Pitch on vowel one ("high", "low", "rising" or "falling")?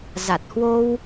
low